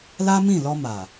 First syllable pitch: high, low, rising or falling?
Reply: high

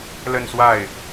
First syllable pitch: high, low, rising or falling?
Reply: falling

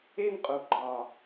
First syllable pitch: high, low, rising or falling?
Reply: high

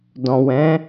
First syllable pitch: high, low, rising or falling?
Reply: low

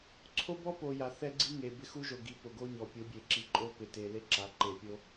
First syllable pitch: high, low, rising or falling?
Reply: high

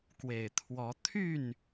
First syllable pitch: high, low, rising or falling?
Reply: low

